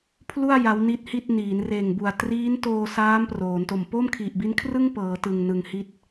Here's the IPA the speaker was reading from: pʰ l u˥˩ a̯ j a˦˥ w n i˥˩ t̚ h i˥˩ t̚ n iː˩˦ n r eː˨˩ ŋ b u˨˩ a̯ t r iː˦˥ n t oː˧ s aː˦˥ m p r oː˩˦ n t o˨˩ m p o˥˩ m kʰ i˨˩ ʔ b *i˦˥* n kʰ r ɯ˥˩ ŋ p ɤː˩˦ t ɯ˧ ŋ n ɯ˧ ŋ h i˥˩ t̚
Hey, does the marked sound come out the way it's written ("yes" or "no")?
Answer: yes